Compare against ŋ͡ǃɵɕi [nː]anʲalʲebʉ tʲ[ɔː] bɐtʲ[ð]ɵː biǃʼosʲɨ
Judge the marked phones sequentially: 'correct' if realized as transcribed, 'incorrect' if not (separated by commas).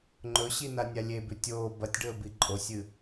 incorrect, incorrect, incorrect